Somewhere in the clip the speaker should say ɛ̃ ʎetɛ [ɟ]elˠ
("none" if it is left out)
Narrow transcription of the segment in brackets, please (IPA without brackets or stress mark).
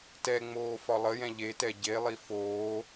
ɟ